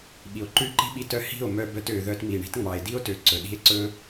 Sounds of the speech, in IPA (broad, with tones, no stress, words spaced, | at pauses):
ɓi˨o̯ǃʉ˦˨ǃi̤˦ɓi˧ tœ˦ hi̤˦˨o̯ mœ˧bœ˧t ø˨ ðœ˧tmi˨ɳi̤˦tŋ͡mɑ˨e̯ di˦o̯tø˨ ǀɵ˨ ɗi̤˧e̯ ǀɵ˦